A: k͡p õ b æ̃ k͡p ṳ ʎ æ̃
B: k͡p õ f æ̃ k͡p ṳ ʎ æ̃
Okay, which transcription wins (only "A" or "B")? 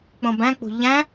A